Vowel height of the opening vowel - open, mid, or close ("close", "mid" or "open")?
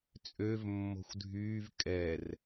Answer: mid